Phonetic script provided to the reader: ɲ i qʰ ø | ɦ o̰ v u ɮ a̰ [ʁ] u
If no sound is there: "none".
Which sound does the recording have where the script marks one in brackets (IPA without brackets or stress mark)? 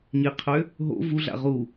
ʁ